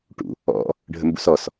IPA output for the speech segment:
ʈ ṵ | ɔ̰ | ɖʱ ə m b ṵ s ɔ s

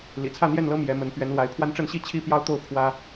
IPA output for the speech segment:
l ḭ˨˩ t͡sʰ ä˥˨ n̪ j ɛ˥˨ n l ɤ˦ m j ɛ˨˦ m ə˨˦ n p ɥ ɛ˨˦ n l w a˨˦ ɪ̯ pʰ w a˦ n ʈ͡ʂ ə˥˨ n ɕ i˥˨ t͡ɕʰ i˦ p j ɑ˦ ʊ̯ t̪ o˥˨ ʊ̯ pʰ w ä˦

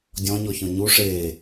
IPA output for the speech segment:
dʲ ɔ̃ ɲ ɔ ç ɔ̃ ɲ u ʂ eː

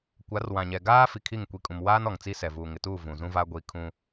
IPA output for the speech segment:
kʷ a˨˦ r w ã˨ ɲ ɛ˨ ɡ aː˦ f i˨ kʰ i˦˨ ŋ kʷ i˨ kʼ ũ˨ m w aː˦ n ɔ˨ ŋ t͡s i˦ s ɛ˨ v uː˨ ŋ ɪ˨ t uː˦˨ v ũ˨ z ũ˦ v a˦ ɡʷ i˦ kʰ ũ˦

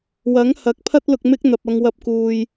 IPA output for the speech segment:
w ɐ˨˥ ŋ h ɐ˨˥ k̚ pʰ ɐ˥ t̚ l ʊ˧ k̚ m ɪ˥ k̚ n̪ ɐ˨ p̚ ɐ˧ ŋ w ɐ˧ p̚ k uː˨ j

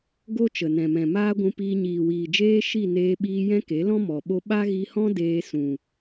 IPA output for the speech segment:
ɡ o˦ t͡ʃ ə˨ n ɛ̃˨ m ɛ̃˨ m aː˦ ɡʷ ũ˧ p iː˧ ɲ iː˨ w iː˨ d͡ʒ eː˦ ʃ i˦˨ n eː˧ ɓ iː˧ j ɛ̃˦ k e˨˦ l ɔ̃˦ m ɔ˨ ɓ o˦ ɓ a˦ ɣ i˧ h ɔ̃˦ d eː˧ s ũ˨

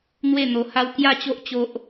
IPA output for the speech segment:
n̪ w e˥˧ n̪ o˧ h a˦ w k j a˥˧ t͡ɕ o˦ ʔ t͡ɕ o˦ ʔ

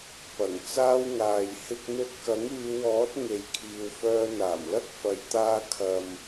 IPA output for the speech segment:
p ɐ˨˩ ŋ t͡s aː˧ w ŋ aː˨ j h ɪ˧ k̚ n̪ ɵ˧ t̚ k ɐ˨˥ ŋ yː˨˧ w ɔː˨˥ t̚ ŋ e˨ j kʰ iː˨ w f œː˧ n̪ aː˨˩ m l ɐ˥ k̚ f ɐ˨˧ j t̪ aː˧ kʰ ɐ˨ m

